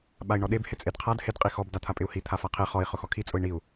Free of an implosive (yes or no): no